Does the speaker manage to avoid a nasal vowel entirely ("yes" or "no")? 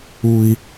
yes